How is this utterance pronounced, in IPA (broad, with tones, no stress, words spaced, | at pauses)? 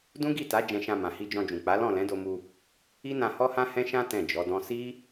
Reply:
dũ˦ɡi˦˨ta˨˦ d͡ʒɛ̃˧ʃã˧ mã˨hi˧d͡ʒɔ̃˧d͡ʒũ˨ k͡pa˨˦lɔ̃˦˨ lɛ̃˨˦do˧ mu˧ | i˦nã˧ hɔ˦hã˦hɛ̃˦ʃã˦ tɛ̃˦˨d͡ʒɔ˨˦dɔ̃˦ si˦